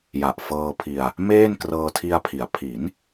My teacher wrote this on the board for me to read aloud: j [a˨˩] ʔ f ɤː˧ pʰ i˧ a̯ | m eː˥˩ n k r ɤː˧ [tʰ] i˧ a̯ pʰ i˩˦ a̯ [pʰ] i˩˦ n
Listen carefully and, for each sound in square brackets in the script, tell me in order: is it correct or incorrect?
correct, correct, correct

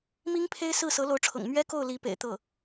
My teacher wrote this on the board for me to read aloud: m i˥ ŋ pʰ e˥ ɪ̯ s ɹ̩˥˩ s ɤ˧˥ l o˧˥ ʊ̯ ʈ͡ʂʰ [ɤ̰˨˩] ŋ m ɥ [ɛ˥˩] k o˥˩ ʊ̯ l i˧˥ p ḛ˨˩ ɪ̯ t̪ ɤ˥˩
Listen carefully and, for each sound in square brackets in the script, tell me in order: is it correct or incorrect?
correct, incorrect: ɛ˥

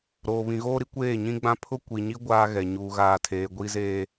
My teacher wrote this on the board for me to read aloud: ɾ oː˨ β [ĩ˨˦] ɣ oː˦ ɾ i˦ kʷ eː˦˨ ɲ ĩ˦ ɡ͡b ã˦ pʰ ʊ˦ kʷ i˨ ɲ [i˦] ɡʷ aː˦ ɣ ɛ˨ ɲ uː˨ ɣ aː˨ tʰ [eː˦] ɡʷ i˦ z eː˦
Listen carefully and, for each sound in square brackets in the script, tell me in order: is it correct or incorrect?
incorrect: ĩ˨, correct, incorrect: eː˨

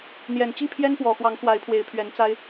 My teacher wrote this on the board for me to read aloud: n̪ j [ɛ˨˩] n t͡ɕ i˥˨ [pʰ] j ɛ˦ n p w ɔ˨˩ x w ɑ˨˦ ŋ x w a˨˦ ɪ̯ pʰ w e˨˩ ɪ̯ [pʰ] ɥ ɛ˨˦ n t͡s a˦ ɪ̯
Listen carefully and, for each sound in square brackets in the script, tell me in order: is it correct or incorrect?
correct, correct, correct

